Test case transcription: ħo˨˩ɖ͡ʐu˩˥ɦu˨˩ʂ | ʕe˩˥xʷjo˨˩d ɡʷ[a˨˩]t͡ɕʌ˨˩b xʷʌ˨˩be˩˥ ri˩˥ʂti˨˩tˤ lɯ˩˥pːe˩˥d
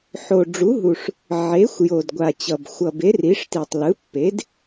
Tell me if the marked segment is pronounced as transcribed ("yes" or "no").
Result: yes